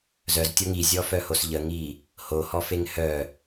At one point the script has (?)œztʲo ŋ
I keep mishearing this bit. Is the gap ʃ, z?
z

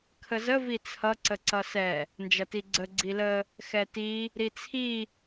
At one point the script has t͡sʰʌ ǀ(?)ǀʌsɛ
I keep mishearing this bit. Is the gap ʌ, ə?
ə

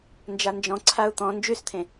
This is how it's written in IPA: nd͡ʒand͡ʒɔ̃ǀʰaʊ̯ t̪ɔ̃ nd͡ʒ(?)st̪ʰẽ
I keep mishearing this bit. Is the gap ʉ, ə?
ʉ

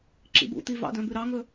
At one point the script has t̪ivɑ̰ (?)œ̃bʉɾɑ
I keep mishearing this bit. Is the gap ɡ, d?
d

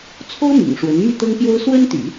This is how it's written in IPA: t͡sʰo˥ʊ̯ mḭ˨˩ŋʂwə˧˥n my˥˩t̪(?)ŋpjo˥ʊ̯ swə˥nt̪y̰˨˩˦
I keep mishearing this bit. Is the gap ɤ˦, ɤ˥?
ɤ˥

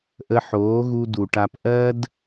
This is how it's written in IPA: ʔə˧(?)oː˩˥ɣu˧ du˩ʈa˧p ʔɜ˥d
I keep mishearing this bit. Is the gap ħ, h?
ħ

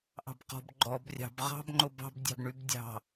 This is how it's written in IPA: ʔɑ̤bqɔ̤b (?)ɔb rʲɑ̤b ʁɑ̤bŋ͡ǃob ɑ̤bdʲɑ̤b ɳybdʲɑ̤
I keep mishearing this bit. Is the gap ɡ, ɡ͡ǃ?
ɡ͡ǃ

